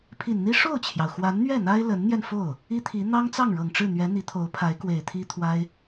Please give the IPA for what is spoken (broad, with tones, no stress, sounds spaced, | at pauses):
pʰ i˨˩ n n̪ i˥ ʂ o˥˩ ʊ̯ t͡ɕʰ j ɑ˩ ʊ̯ x w a˧˥ n n̪ ɥ ɛ˥˩ n̪ a˥ ɪ̯ l ə˧˥ n n̪ j ɛ˧ n f o˥˩ ʊ̯ | i˥ t̪ʰ i˧˥ n̪ ɑ˥ ŋ t͡s ɑ˥˩ ŋ ɻ ɤ˨˩ ŋ ʈ͡ʂ ɻ̩˥˩ n̪ ɥ ɛ˧˥ n̪ i˧˥ t̪ʰ o˧˥ ʊ̯ pʰ a˧˥ ɪ̯ k w e˨˩ ɪ̯ t̪ʰ i˥ t̪ʰ w a˥ ɪ̯